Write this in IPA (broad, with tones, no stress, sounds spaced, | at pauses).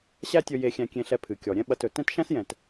ɕ æ˥ tʲ ɵ˧ j e˧ xʲ æ̃˧ kʲ ẽ˧ ɬ ɛ˧ pʰ ɨ˩ kʲ ɔ˩ ɾʲ ɛ̃˥ ɓ ɐ˧ t ɵ˩ t ɛ̃˥ t ʃ æ̃˥ s j ɛ̃˩ t